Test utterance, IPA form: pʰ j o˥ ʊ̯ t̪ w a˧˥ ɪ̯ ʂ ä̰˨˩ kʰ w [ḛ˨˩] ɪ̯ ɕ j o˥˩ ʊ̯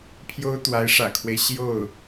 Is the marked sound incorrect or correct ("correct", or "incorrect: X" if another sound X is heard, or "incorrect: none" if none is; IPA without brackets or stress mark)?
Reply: incorrect: e˦